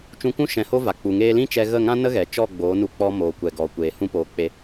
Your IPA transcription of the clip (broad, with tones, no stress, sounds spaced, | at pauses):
t͡ʃ ũ˧ kʷ ũ˦ ʃ ɛ̃˧ h o˦ v a˨ k͡p u˨ ŋ eː˧ l ĩ˦ t͡ʃ ɛ˧ ɣ ə˦˨ ŋ ã˦ n ə˦ ɣ ɛ˨ t͡ʃ ɔ˦˨ ɡ͡b oː˨˦ n u˧ k͡p ɔ˧ m oː˨ kʷ ɛ˨ ɡ ɔ˨ kʷ eː˨ h ũ˦ p oː˧ k͡p e˧